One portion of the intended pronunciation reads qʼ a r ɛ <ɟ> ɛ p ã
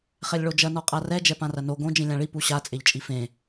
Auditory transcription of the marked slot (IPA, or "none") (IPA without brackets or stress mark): d͡ʒ